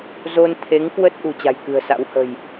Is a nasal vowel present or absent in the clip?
absent